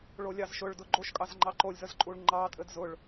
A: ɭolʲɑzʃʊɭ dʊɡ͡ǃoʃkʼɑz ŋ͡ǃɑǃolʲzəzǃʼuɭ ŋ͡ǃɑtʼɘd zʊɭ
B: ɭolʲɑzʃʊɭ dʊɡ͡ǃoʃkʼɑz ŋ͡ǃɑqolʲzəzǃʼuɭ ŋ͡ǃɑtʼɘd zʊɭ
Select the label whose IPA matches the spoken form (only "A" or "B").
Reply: A